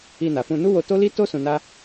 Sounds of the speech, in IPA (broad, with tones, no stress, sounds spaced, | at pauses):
i˧ n a˨ f ũ˧ n u˦ w o˧ t o˦ l i˦ t o˦ s ũ˧ n a˦